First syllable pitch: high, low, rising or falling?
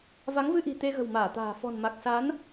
rising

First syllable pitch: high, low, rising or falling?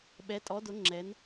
rising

